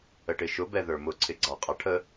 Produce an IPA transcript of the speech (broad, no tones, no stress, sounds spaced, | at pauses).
ə ʈ ɪ ʃ ʊ b ɛ ð ə˞ m ʊ ǀʰ ɪ ɡ͡ǀ ɑ qʼ ɑ ʈʰ ə